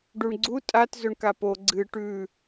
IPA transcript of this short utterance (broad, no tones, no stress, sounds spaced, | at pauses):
ɖ u ɳ ɡ͡ǀ u tʼ a t z ɵ ɳ k a p o ɡ͡ǀ ɨ ʈ ʉ